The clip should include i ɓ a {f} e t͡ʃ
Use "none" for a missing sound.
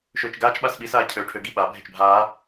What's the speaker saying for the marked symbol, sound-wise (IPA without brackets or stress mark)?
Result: bʱ